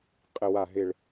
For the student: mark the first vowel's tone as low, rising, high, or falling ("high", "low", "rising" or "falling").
low